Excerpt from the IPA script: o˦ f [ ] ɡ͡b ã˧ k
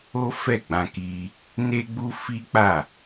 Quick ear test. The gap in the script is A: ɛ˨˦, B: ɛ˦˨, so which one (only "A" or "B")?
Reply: B